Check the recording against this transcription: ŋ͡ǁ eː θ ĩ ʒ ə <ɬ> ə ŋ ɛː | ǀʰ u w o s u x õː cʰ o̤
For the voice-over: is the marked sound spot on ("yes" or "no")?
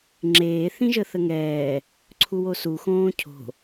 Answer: no